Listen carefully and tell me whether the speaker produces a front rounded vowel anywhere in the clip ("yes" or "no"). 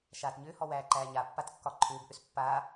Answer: yes